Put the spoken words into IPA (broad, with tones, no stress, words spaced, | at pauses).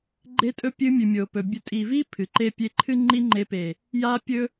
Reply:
ɡ͡ǃe˧tʼɵ˧ pʲɨ˧ mʲʉ˨mʲo˨ pɵ˨bʲɵ˧ tʼi˨vi˦ pʰɨ˨ǃe˦pʲe˦ ǃʰɨ˦ŋ͡ǃi˦ŋ͡ǃe˧pe˨ | ja˦ pʲɵ˦